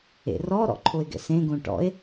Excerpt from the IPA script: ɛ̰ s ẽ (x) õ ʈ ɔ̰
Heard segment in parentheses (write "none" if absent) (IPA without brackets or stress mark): ɡ